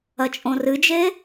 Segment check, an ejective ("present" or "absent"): present